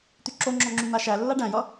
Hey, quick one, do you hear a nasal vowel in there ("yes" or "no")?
yes